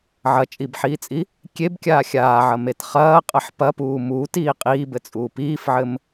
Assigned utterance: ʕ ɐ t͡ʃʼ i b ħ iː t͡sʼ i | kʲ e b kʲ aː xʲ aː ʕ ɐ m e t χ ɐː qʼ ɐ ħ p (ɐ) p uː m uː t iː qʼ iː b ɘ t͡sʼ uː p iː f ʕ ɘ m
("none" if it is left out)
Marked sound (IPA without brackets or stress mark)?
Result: ɐ